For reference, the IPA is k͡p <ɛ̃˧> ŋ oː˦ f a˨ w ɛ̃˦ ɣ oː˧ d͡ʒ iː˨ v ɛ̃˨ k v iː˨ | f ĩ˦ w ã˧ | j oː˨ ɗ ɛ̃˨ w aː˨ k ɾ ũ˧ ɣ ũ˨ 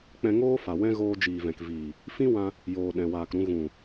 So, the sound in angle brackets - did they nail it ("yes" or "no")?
yes